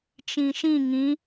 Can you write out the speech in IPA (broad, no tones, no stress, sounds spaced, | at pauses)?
t͡ʃ ĩ ʃ ĩ ŋ ĩ